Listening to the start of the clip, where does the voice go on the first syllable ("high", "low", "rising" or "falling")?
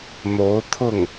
rising